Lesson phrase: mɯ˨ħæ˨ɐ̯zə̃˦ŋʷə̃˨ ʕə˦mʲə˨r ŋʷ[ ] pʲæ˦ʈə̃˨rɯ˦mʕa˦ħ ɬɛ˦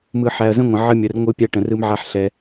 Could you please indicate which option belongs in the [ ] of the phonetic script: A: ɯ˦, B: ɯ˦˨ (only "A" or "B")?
A